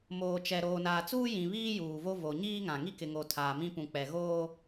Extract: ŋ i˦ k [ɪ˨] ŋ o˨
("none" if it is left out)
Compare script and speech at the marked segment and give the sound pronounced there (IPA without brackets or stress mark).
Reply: ɪ˨